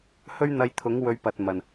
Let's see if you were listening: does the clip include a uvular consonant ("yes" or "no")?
no